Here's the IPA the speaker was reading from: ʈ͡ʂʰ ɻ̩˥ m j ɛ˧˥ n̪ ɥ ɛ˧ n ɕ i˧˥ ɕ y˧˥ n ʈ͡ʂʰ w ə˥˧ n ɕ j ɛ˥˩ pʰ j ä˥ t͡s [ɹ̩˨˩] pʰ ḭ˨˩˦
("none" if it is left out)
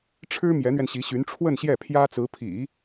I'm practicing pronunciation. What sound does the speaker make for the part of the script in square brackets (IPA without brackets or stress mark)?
ɹ̩˧˥